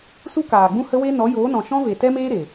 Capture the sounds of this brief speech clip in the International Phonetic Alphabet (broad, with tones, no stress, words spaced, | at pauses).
su˦kaː˨ɡ͡bũ˦ hə˦we˦ nɔ˨˦joː˨˦nɔ̃˨ ʃɔ̃˦ve˨ tɛ˦meː˦ɾe˨